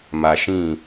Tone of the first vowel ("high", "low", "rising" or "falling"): low